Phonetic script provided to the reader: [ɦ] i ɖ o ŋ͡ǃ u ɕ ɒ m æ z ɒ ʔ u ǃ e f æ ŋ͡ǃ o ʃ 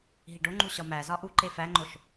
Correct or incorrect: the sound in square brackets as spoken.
correct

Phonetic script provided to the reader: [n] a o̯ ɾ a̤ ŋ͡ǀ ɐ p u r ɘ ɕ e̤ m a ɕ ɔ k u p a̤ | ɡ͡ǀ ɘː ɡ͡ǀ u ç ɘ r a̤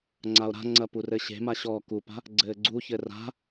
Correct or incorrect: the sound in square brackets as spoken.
incorrect: ŋ͡ǀ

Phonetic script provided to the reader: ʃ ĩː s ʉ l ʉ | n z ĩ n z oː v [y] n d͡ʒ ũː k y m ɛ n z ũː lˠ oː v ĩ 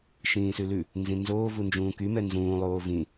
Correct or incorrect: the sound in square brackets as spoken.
incorrect: u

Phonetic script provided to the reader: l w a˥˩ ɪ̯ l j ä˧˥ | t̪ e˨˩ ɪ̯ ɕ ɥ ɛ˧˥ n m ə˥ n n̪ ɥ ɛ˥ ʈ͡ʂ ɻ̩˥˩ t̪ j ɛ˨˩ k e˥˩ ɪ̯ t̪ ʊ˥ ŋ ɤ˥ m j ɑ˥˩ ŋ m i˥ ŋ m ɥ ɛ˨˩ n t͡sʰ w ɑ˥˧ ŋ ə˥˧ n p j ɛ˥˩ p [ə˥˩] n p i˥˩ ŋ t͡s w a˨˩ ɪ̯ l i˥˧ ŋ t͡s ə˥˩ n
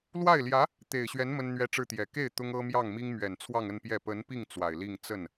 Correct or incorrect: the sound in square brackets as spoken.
incorrect: ə˧˥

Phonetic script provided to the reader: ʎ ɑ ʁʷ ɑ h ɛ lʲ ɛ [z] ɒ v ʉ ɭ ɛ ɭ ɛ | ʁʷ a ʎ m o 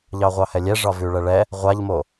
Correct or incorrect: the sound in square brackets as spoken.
incorrect: ʐ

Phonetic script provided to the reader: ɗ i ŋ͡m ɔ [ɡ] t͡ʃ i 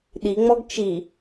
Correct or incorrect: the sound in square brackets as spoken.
correct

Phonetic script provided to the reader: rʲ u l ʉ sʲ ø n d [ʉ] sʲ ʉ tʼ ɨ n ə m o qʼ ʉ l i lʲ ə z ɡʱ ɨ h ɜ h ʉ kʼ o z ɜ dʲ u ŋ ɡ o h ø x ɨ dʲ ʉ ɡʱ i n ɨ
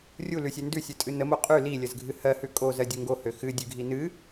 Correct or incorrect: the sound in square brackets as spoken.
correct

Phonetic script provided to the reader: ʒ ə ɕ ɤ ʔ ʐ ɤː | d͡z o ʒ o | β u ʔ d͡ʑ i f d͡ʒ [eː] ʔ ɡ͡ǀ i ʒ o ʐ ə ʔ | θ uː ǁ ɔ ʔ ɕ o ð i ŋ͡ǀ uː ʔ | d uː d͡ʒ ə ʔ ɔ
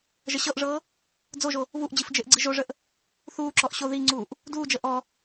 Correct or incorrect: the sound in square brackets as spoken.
incorrect: e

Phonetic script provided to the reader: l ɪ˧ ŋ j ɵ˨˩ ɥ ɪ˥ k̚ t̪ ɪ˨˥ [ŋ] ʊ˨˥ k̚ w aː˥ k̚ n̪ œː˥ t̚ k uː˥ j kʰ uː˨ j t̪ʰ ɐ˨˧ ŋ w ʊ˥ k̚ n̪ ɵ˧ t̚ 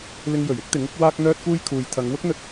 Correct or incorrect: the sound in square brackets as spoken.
correct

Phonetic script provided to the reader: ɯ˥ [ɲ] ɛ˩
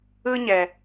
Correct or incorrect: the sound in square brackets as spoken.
correct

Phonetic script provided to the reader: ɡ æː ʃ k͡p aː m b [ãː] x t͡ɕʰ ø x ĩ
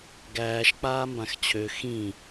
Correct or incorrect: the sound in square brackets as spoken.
incorrect: ã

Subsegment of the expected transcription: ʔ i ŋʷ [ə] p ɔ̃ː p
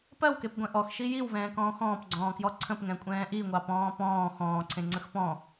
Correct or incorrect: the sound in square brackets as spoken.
incorrect: ɑ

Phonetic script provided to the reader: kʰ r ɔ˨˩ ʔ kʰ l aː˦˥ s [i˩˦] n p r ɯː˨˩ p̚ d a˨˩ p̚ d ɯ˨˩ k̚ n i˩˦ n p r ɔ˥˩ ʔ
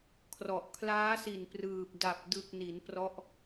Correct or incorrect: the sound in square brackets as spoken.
incorrect: i˨˩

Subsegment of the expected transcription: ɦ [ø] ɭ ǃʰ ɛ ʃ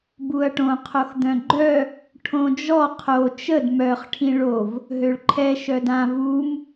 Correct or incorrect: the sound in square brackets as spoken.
correct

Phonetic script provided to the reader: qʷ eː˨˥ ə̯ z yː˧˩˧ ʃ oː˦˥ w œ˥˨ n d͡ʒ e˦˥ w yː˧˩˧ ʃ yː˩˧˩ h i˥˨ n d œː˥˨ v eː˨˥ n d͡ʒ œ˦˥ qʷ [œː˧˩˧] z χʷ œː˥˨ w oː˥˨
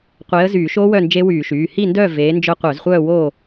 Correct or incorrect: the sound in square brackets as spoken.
incorrect: œ˧˩˧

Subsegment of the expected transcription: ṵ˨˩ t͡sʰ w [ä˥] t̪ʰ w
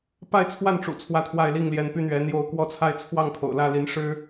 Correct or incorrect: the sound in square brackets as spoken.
correct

